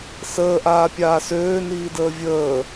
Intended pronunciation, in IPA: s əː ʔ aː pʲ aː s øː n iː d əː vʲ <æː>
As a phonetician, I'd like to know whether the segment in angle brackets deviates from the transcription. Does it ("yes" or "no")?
yes